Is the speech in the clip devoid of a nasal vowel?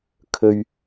yes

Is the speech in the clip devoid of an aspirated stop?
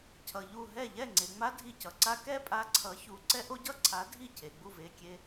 no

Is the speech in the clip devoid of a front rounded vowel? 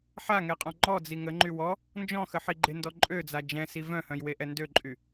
no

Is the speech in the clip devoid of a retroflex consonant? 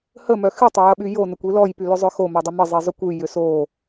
yes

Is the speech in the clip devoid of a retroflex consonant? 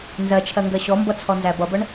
no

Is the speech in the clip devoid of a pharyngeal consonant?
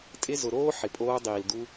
no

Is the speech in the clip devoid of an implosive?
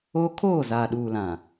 no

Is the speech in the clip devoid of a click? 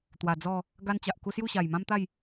yes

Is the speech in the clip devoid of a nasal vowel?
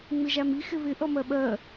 yes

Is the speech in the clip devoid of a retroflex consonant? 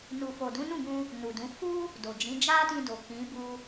yes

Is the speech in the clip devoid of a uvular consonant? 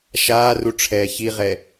no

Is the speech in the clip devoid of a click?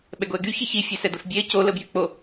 yes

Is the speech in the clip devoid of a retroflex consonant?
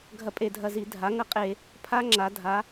yes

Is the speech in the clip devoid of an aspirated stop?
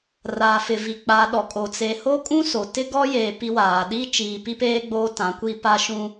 yes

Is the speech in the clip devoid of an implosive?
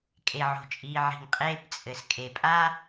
yes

